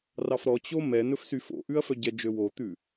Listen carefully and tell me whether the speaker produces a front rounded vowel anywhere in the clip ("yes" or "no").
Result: yes